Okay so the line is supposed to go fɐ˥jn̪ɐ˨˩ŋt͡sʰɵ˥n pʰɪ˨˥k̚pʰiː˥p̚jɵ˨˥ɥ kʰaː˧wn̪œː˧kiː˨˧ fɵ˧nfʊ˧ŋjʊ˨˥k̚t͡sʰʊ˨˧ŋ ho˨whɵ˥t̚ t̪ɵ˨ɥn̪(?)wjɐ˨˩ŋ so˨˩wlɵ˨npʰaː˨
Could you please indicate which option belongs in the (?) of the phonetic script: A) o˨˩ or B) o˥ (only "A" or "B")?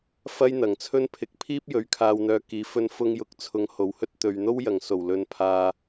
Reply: B